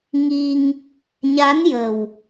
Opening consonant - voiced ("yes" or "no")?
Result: yes